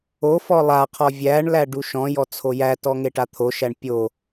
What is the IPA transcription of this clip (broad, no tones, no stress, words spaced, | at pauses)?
ofɔ lˠaqʰɔ vʲæɳlæ ɖuʃɔ̃jɔ t͡sʰojætɔ ŋeʈat̪ʰoʃæɳ pʲo